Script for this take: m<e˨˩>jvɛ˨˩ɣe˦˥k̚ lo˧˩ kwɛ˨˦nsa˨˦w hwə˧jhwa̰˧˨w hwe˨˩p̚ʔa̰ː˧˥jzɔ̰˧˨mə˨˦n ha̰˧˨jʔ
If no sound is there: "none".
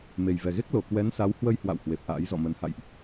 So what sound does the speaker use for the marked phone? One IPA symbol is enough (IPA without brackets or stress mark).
e˨˩